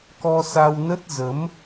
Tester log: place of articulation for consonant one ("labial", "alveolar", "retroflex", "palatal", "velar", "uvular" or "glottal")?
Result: velar